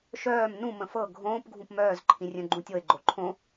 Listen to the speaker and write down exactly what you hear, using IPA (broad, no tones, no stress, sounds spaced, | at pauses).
ʃ œː m n ũ m ə̃ f ɤ ɡʱ õː p ɡʱ ũ p m œː z ǃʰ ĩ rʲ œ̃ ɡ͡ǃ ũ tʲ ɤ e̯ ɡ͡ǃ o ǃʰ õ